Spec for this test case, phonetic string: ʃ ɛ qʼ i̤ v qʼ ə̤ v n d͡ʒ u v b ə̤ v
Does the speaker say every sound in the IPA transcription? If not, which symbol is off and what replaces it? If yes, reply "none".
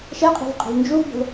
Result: none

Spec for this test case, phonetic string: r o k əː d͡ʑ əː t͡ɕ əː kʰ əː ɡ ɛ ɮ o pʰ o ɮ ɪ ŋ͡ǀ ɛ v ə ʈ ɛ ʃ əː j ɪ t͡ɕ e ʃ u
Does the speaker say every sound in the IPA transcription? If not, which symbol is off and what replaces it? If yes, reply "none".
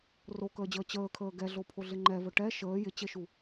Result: ŋ͡ǀ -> ŋ͡ǃ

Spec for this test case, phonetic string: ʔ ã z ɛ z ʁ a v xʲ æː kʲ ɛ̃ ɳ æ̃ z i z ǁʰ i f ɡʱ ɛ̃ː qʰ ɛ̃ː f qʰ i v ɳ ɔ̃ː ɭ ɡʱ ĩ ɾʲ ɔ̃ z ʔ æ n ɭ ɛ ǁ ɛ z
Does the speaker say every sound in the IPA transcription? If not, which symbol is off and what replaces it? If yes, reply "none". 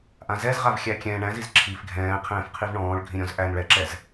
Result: æː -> æ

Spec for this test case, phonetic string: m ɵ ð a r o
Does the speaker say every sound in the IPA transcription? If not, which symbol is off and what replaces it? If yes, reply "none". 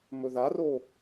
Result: none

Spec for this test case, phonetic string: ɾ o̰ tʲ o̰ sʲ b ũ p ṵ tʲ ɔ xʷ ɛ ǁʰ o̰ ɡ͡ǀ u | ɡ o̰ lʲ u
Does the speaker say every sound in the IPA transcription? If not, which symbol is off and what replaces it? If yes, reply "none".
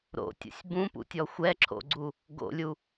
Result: none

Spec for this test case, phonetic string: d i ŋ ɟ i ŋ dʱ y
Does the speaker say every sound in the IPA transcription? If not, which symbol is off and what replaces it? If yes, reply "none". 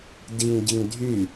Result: none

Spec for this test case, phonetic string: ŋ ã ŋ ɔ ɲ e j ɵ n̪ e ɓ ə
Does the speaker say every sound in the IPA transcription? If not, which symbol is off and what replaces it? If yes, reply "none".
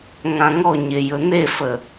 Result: ɓ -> f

